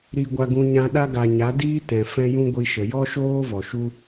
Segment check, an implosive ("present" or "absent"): present